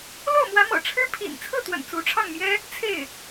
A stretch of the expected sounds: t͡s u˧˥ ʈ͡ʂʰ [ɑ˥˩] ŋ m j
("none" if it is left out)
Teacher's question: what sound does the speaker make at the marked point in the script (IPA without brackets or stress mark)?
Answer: ɑ˥˩